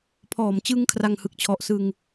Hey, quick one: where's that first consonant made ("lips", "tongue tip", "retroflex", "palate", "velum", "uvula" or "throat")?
lips